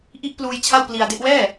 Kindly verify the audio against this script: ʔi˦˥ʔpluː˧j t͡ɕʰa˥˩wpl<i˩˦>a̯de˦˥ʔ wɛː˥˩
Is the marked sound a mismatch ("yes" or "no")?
yes